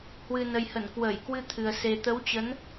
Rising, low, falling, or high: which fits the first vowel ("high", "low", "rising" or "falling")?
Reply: low